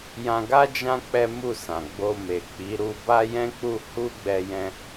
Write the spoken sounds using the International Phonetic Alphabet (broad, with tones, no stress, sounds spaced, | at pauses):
j ã˧ ɡ a˦ d͡ʒ ã˦ k͡p ɛ˦ m u˦˨ s ã˨ ɡ͡b o˧ m e˨ k͡p i˨˦ ɾ u˧ b a˦ j ɛ̃˦ k͡p u˦˨ h u˧ ɡ͡b ɛ˧ j ɛ̃˧